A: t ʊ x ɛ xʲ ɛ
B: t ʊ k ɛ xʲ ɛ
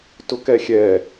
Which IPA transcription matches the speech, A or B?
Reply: B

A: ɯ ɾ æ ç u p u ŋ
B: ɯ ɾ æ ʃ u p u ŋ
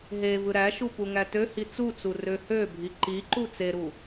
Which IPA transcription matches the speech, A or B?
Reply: B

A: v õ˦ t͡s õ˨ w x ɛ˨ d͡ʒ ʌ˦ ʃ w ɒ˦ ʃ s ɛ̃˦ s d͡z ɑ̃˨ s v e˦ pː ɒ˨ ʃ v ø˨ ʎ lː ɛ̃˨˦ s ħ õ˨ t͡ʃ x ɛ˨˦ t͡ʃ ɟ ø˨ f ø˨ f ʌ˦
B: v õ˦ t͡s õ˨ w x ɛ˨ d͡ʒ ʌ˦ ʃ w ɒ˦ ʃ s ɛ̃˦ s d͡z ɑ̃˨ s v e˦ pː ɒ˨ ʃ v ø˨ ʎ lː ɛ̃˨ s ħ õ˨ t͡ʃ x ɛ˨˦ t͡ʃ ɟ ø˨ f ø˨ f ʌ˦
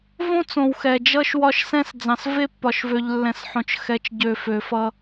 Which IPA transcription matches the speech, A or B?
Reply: B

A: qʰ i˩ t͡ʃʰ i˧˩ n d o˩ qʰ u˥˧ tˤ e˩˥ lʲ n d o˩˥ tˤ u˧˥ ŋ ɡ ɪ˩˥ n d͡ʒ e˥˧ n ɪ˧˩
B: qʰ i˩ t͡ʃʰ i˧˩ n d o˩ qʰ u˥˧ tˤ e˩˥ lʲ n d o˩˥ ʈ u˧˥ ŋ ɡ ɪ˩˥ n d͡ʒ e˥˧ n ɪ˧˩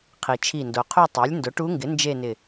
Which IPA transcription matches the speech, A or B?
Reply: B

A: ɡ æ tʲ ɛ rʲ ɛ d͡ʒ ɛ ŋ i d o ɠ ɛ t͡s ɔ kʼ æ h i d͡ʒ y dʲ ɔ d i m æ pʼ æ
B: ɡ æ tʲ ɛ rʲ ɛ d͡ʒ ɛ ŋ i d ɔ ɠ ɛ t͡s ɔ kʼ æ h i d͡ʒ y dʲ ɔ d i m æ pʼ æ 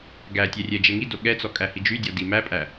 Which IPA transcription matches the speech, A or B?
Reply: A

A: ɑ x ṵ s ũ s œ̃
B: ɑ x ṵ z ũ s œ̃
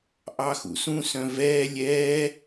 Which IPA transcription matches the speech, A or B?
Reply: A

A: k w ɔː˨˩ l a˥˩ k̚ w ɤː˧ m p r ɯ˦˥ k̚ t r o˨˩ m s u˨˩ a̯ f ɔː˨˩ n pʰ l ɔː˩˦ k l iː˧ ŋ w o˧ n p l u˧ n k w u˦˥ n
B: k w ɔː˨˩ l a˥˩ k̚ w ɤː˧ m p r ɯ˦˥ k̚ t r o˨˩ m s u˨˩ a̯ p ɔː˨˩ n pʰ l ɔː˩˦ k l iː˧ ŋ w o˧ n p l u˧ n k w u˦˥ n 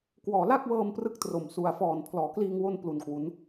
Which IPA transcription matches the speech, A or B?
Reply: A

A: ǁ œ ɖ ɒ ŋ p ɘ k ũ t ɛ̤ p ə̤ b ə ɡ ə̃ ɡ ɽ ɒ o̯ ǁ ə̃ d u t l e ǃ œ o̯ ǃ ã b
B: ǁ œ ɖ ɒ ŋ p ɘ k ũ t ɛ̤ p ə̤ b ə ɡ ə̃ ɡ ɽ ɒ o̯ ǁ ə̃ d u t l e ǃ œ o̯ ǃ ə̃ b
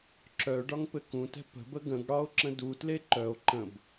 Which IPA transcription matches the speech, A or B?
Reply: B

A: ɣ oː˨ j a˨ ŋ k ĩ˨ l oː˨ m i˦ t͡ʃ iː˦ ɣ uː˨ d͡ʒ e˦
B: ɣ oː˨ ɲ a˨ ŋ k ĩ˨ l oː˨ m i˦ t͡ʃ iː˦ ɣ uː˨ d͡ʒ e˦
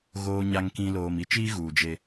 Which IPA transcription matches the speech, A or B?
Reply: B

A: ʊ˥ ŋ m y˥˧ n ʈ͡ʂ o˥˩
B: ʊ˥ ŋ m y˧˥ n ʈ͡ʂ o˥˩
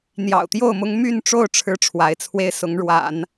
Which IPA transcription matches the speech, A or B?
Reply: A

